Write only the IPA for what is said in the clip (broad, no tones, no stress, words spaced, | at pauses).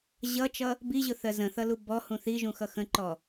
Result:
ʑʌt͡ʃʌ | biʑʊθɜ zə̃θʌlu bɔhũ θiʒũxʌ xə̃ǃɔ